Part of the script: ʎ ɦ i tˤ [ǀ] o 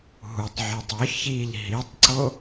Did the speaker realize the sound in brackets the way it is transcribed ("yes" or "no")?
yes